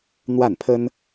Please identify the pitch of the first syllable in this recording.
falling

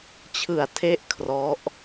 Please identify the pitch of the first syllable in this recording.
low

